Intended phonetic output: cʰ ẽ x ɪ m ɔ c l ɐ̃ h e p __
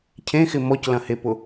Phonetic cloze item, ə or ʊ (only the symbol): ʊ